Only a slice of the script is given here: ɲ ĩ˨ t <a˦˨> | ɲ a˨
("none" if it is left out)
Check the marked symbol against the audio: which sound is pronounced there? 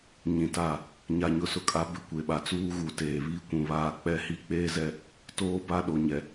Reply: a˦˨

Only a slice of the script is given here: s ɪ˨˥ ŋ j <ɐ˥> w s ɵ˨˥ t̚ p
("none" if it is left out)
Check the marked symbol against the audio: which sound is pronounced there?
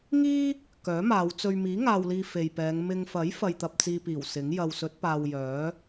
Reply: ɐ˧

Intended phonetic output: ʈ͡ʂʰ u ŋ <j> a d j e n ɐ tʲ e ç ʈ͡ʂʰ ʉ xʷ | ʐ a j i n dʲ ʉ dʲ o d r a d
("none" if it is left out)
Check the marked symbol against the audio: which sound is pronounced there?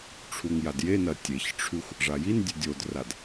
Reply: j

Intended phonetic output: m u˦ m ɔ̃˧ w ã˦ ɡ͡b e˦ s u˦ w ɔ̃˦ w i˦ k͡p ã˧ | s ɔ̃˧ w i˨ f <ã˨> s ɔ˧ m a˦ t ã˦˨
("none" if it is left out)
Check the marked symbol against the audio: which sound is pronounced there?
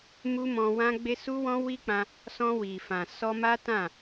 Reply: ã˨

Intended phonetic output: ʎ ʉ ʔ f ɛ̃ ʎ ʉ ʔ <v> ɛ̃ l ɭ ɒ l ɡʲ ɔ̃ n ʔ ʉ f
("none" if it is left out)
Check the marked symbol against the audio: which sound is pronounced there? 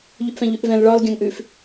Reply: v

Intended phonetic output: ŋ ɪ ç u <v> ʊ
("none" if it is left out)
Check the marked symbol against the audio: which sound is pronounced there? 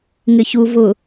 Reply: v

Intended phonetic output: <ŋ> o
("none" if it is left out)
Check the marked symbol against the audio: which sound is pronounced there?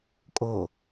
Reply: kʼ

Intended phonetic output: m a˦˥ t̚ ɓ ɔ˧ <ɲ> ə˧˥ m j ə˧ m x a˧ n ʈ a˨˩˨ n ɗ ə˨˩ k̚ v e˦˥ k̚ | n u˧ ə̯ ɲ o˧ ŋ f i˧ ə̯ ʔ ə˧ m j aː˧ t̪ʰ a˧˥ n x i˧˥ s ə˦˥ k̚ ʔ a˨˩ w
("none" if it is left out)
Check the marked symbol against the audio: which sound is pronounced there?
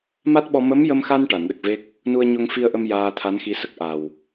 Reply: m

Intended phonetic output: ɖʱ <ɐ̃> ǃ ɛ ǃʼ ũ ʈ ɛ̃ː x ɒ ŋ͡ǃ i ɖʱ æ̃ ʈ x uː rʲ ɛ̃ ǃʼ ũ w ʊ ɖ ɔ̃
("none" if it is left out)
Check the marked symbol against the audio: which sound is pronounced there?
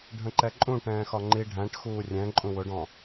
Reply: ə̃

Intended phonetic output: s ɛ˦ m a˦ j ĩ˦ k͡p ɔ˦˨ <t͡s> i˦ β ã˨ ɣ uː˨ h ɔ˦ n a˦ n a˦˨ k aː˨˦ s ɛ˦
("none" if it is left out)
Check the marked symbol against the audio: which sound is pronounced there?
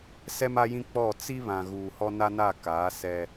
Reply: t͡s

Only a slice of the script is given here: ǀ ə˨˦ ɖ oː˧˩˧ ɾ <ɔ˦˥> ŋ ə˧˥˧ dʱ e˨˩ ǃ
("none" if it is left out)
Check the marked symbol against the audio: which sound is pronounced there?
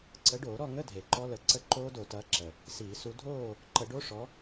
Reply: ɔ˥˨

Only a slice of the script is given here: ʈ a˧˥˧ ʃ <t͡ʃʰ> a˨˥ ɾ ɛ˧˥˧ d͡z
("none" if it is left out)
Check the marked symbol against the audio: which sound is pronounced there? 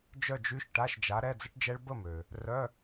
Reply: d͡ʒ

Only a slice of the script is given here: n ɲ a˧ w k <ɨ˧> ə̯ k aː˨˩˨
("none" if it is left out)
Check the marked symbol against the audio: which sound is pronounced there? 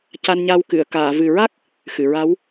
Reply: ɨ˨˩˨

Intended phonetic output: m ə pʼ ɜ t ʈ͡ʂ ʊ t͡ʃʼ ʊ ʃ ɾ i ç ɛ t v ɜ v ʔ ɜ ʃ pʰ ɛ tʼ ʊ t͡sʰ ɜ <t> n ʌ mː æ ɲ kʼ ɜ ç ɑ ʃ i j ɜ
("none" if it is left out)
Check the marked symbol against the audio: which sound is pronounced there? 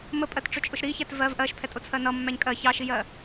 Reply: none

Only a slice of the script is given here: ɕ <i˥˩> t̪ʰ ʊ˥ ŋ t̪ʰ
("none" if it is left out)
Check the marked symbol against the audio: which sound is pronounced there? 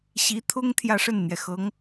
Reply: i˧˥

